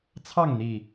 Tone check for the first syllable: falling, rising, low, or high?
falling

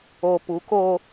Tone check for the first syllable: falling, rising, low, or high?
low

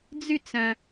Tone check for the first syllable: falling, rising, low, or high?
falling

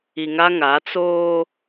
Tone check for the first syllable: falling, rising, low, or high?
low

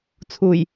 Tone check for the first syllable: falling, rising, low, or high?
low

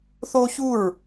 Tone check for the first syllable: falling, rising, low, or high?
high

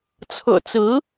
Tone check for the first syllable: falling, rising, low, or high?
low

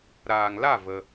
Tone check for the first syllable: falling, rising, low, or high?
low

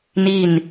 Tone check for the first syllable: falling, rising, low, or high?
falling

